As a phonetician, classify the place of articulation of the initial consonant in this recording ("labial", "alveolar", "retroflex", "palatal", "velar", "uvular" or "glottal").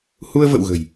glottal